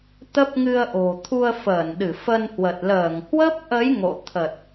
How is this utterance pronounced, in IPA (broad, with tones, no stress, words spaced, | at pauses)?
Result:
t̪ə˦˥p̚ŋɨ˧ə̯ʔo̤˨˩ t̪ʰu˧ə̯fəː˧˩nɗɨ˧˩ fə˧nhwə˨˩t̚ ləː˧˩ŋhwə˦˥p̚ʔə˨˦j ŋo̰˧˨t̪ʰə˨˩t̚